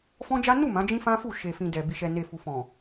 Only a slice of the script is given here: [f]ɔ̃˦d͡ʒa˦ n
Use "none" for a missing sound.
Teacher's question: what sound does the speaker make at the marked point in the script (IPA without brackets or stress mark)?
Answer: f